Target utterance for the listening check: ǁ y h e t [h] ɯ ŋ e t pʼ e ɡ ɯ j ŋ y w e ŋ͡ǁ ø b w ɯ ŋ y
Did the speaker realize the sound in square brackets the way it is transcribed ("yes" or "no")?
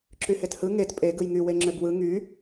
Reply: yes